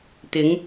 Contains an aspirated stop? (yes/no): no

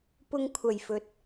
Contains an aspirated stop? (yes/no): yes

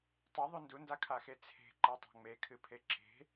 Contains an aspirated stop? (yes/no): yes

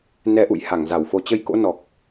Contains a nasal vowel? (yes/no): no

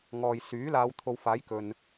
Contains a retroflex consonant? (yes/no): no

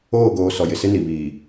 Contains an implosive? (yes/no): no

